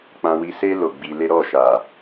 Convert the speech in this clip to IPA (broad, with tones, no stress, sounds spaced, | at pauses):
k͡p ã˧ w i˧ s e˦ l o˦˨ ɡ͡b i˧ l e˦ ɾ ɔ˦˨ ʃ a˨